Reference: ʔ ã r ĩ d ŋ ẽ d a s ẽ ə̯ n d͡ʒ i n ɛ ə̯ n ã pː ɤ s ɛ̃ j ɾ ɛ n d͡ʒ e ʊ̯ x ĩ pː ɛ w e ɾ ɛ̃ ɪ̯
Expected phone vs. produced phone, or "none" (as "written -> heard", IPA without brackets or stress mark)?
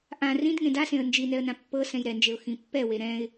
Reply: none